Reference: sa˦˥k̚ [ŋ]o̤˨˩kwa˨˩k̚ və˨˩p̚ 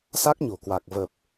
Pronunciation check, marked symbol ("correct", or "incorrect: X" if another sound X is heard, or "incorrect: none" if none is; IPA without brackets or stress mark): incorrect: ɲ